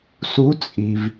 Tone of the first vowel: rising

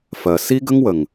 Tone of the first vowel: low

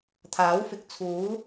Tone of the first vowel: rising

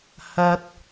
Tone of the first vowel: high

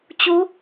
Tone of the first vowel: rising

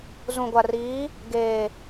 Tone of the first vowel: low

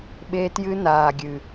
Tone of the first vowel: high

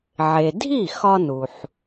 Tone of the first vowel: low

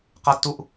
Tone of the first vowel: high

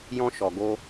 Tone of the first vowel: high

